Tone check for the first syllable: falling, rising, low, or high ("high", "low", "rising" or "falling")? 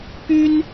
high